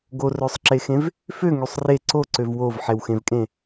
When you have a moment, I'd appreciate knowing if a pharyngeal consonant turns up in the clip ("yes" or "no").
yes